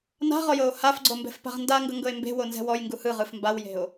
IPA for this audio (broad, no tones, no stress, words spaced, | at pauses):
na̤ʁɔjɤo̯ hafɡ͡ǀombɛ̤fpa̤ʁ ndaŋɡɤŋɡɤe̯ mbe̤wonzɛ̤ wɔjŋɡu hɯʁɯf mbawje̤o̯